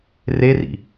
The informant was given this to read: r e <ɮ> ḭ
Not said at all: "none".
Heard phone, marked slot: r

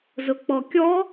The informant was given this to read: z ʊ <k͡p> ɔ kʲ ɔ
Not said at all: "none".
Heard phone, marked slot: k͡p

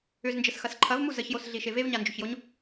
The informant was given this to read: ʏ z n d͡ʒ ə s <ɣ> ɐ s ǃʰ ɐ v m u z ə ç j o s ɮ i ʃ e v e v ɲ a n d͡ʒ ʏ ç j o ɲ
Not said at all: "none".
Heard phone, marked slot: x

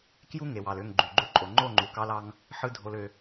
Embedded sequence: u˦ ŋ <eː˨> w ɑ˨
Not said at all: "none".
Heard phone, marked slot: e˨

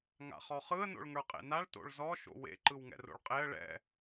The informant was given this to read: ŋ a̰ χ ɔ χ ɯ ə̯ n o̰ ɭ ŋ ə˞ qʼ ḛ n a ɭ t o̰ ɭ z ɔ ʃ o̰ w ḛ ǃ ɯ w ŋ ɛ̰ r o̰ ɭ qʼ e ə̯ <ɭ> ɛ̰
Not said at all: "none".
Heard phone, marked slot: ɭ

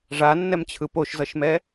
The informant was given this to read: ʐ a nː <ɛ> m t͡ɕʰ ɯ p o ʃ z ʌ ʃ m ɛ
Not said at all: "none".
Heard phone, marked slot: ɛ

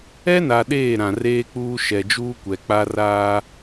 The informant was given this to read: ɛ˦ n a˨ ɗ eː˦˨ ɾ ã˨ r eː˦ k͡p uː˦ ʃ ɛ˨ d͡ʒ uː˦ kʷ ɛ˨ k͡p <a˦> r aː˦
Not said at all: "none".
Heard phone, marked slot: a˦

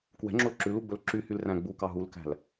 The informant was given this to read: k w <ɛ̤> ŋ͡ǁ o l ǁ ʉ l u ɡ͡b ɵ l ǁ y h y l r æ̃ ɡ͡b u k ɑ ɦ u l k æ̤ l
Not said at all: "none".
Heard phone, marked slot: ɛ̤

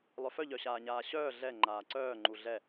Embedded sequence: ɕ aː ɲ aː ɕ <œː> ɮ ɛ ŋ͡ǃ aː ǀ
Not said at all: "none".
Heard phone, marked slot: œː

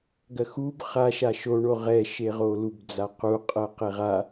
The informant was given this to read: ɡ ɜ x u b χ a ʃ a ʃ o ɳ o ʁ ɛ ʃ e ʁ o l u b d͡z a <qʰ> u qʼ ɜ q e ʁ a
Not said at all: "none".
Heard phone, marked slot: q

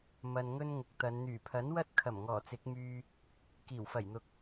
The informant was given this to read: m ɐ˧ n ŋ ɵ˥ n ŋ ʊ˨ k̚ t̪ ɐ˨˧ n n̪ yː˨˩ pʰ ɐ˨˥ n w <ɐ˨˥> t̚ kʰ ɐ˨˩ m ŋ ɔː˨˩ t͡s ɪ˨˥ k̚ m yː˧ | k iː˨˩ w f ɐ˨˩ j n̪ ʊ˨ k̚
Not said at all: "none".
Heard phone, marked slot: ɐ˥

